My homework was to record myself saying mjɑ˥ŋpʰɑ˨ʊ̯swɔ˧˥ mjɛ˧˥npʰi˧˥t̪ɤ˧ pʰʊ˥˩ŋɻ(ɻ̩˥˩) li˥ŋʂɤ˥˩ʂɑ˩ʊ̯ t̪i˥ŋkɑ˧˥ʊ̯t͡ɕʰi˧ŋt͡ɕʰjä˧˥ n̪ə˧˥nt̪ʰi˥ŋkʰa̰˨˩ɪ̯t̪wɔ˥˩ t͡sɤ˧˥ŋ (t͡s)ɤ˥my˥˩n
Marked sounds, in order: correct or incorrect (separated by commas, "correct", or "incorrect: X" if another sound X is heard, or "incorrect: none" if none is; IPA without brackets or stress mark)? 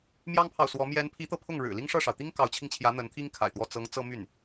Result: incorrect: ɻ̩˨˩, correct